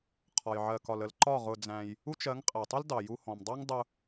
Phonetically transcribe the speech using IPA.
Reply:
qʰɒ˨j ʕɜ˨kɒ˨lə˨l ǃɒ˦˨ ʁʊ˧d͡zæ̃˧j | u˧t͡ʃ ɜ˨˦ŋqʼæ˨tˤʊ˦l dɑ˨ju˧ hɔ̃˨mdˤɑ˦ŋdˤʊ˧

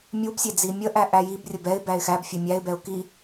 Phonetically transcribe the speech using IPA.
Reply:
mʲubsʲe d͡zimʲəʔæ ʔæjibrʲə bɛɪ̯ bæɪ̯xæbfʲɛ mʲæɪ̯bɛʊ̯ ki

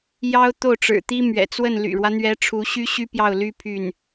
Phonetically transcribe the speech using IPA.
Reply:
jɑ˥ʊ̯ t̪o˥˩ʊ̯ʈ͡ʂɻ̩˨˩t̪i˥ mɥɛ̰˨˩t͡swə˥˩n ly̰˨˩ɻwä˦n̪ɥɛ˧˥ ʈ͡ʂʰu˧˥ɕy˥ɕy˥ pjɑ˥˩ʊ̯ly˥ pʰy˥˩n

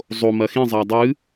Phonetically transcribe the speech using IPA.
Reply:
zˤomɐ xĩzˤa dˤɨ

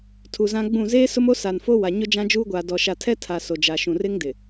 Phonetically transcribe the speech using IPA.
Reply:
tʰu˨zã˦ɡ͡bũ˦˨ zeː˦sʊ˦mo˦ sa˨nfo˦wa˨ɲʊ˦ d͡ʒã˦d͡ʒuː˦ɡʷaː˨dɔ˨ ʃa˨tʰɛ˦ tʰa˨ so˨d͡ʒa˨ʃũ˨r ɪ˦ŋ dɪ˨

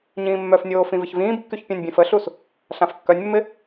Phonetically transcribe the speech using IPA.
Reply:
ɲĩːmːœfnʲoː fĩvɪçvĩːbkːyç pʲãnʲbʲɛ̃fəɬus | ɬãfkːœnʲmːɪ

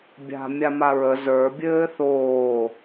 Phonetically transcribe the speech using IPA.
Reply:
bʲa̤ mʲamaɹə zə˞ bʲɘːθoː

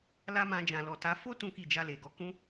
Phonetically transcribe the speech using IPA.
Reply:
la˦mã˧ d͡ʒã˨lɔ˨ta˨˦ fo˦ tũ˦ki˦˨ d͡ʒa˧le˨ɡɔ˧ kũ˧

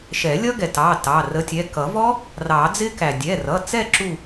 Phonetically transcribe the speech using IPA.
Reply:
ʃɛ˨˩˦ lʲʌ˦˥ɡɛ˩tɑ˩˧˩ tɑ˩˧˩rə˨˥ tʲɛ˩˧˩ kʌ˨˩˦vɔ˦˥ | rɑ˨˩˦d͡zɪ˦˥kæ˩ dʲɛ˩˧˩rʌ˩˧˩t͡sɛ˦˨ ǁu˦˨

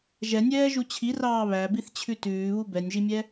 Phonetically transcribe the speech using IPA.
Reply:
ʒɛnʲɛːʒu t͡ɕʰirɑː βæbiθt͡ɕʰʉ tʉːβu bɛnʲʒimʲɛ

